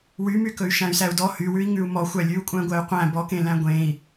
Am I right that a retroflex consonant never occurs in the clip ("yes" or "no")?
yes